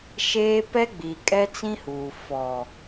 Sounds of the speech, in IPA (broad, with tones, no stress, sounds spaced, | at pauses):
ʃ eː˦ p ɛ˦ ɡ͡b i˨ kʼ ɛ˦ t͡s ĩ˦ h uː˨ f ɔ˨